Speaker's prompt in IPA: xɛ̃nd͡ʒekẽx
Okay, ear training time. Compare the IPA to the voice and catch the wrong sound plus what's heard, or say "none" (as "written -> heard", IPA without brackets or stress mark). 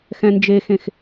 k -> x